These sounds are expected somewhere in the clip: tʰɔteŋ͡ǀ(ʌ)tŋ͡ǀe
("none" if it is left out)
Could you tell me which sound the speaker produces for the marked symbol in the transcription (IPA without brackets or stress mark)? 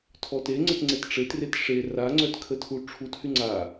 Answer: ə